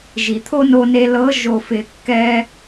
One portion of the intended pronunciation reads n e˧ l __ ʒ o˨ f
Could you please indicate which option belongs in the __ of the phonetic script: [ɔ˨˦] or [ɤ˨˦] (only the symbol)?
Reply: ɤ˨˦